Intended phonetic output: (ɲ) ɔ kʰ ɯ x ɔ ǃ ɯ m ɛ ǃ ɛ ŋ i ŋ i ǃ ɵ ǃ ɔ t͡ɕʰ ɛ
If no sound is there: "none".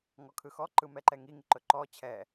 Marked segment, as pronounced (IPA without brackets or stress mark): ŋ